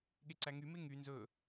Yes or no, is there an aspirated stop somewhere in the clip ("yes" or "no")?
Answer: no